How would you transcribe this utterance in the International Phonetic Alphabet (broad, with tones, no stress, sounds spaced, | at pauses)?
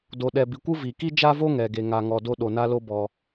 d o˩ ɗ ɛ˩ b i˩ kʷ ɯ˥ v i˩ k i˥ d͡ʒ a˥ v o˥ ŋ ɛ˩ ɡ e˩ ŋ a˩ ŋ ɔ˩ d o˥ ɗ o˩ n a˥ l o˥ b ɔ˩